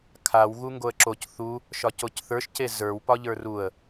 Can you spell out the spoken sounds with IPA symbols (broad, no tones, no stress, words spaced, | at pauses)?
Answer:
kʰaw ɣuŋɡoə̯ǁoc θu | ʃɒcocθə˞ʃ cezə˞wpɒ ʎə˞ruə̯